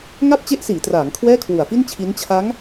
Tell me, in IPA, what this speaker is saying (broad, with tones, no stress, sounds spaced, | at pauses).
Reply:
ŋ a˥˩ p̚ t͡ɕ e˦˥ ʔ s iː˩˦ t r aː˩˦ ŋ kʰ w ɛː˥˩ kʰ w u˨˩ a̯ f i˥˩ n t͡ɕʰ i˦˥ n t͡ɕʰ a˦˥ ŋ